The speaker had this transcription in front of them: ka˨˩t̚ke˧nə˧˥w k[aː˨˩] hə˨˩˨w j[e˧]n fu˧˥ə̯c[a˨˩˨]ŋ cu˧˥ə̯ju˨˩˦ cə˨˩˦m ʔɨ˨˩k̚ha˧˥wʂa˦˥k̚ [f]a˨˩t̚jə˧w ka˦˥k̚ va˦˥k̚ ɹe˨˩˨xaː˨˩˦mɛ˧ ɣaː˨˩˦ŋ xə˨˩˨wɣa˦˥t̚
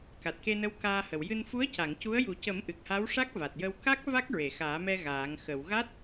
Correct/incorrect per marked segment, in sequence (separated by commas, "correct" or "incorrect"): incorrect, incorrect, correct, incorrect